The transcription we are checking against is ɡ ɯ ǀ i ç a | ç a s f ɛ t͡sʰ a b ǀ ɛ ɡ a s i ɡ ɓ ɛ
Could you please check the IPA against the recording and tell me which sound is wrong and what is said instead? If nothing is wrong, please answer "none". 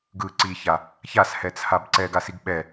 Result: f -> h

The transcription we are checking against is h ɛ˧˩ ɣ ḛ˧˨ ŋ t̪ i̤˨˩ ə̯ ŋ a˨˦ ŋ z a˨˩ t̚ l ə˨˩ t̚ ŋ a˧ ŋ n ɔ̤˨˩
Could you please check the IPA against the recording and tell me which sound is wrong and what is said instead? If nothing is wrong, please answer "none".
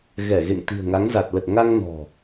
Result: h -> ɣ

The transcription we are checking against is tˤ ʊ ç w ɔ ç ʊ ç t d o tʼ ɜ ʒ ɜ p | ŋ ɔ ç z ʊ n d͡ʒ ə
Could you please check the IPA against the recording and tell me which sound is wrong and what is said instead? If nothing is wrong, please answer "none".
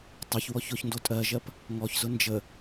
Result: t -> n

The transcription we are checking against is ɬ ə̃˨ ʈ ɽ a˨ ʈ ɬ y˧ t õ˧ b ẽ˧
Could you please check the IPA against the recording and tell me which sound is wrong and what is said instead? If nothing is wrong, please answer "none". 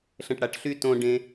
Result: b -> ɖ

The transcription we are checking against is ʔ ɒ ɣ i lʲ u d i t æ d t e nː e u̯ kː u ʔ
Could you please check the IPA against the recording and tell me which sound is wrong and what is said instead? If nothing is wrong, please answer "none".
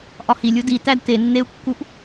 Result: ɣ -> h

